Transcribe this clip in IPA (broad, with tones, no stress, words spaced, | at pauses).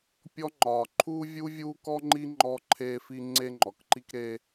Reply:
pʲɔ˥ŋ͡ǃɒː˨ ǃʰuː˥vʲuː˥vʲuː˥kɔ˥ ŋ͡ǃi˥ŋ͡ǃɔ˦ǃʰeː˦fi˦ ŋ͡ǀe˦ŋ͡ǃɔ˩kǃi˦k ɾeː˦